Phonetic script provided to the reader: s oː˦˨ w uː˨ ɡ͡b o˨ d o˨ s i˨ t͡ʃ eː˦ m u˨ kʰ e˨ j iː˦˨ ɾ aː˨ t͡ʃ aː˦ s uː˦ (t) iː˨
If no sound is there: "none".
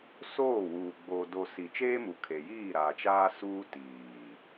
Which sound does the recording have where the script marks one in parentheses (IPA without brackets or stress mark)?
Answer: t